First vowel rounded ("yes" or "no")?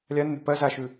no